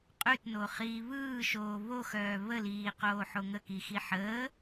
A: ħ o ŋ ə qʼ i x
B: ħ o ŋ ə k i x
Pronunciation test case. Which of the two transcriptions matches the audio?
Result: B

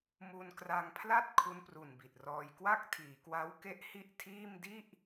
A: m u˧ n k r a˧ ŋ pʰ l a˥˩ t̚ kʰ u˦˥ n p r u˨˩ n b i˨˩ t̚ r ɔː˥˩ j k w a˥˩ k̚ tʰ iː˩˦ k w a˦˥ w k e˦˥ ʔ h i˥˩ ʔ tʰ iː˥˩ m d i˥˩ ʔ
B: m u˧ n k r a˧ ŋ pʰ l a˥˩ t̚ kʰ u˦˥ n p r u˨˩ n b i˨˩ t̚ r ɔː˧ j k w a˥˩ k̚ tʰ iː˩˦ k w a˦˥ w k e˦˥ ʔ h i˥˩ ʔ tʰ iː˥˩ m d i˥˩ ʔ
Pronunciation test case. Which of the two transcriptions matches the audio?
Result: B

